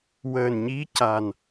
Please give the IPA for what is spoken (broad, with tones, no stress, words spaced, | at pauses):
wəː˨˩nɲi˧˥ca˨˩n